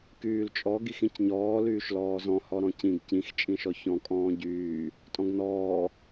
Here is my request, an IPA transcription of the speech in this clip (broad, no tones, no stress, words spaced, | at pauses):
kyːlt͡ʃʼɔ ɡixĩcɲɔː lyːʃlɔːzɔ̃ hɔɾɔ̃cĩɡ cĩx t͡ʃʼĩʃɔçɔ̃ kʼɔ̃ːɟyː | tʼɔ̃ɡnɔː